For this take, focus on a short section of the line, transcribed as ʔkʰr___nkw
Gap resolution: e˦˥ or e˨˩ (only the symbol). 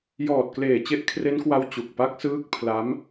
e˦˥